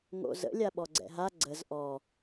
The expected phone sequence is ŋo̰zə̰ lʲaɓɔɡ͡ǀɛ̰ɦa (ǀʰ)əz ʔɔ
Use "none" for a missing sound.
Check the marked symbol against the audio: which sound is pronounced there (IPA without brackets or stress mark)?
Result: ɡ͡ǀ